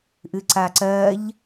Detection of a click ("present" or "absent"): present